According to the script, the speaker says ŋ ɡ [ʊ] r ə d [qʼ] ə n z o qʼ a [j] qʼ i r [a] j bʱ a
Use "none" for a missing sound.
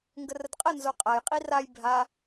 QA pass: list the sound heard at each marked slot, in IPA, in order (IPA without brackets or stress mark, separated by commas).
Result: ə, qʼ, j, a